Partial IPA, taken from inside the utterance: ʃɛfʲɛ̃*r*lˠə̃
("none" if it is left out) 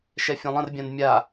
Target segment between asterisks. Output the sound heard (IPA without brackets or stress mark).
none